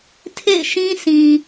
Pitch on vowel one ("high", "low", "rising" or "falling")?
falling